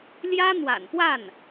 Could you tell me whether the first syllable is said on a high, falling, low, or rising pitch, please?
high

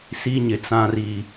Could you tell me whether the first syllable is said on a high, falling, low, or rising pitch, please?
high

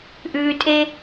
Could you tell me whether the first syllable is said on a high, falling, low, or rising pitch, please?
low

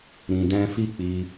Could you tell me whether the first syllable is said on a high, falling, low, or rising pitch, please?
low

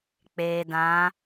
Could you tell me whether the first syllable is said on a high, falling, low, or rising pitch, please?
low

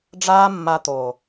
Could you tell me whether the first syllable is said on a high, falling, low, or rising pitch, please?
high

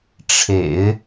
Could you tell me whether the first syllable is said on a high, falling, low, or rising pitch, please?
low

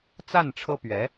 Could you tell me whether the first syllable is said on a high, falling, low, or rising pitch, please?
falling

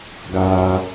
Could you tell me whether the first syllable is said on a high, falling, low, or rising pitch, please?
high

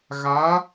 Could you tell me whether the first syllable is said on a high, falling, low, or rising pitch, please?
rising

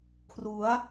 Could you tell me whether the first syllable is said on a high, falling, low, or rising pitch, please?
rising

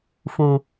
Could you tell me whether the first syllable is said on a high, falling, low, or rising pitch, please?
low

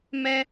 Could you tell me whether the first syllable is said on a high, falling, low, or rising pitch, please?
high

